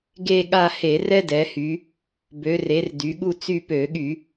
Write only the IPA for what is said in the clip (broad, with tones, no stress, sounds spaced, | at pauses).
ɡ e˦˨ ɠ a˦˨ h e˧˩˧ r ɛ˥ d ɛ˩˧ h y˩˧ | b ø˩˧ r e˩˧ r d y˩˧ ɠ u˦˨ t͡s y˦˨ p ø˧˩˧ ɠ y˧˩˧